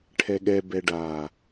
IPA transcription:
ʈʰɛɠɛ bɛɖa

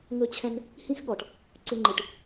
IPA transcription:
ŋɵ˧t͡ɕʰɛ̃˧n | hĩ˦xɠɔ˨ʈ | ǀɨ˧ŋ͡ǃɨ˨ʈ

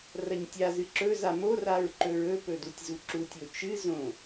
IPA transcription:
rɐɲtʲazɨ ǁɵza moraɹ ǃɵɹɵpɵ dutʲzuǁutʲo t͡ʃɨzõ

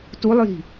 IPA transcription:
tulˠji̤

